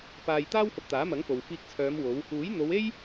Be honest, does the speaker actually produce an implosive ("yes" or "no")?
no